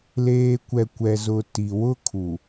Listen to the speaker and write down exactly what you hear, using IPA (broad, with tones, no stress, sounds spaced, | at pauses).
l eː˨ kʷ ɛ˨ kʷ ɛ˨ z ʊ˨ t i˨ w ʊ˦ kʰ u˨